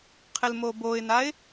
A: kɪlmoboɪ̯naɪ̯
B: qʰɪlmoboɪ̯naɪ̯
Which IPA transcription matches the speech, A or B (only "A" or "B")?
B